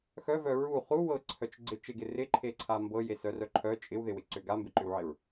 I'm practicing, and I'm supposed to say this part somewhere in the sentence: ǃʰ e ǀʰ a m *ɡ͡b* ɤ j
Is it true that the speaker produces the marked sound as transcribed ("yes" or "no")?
no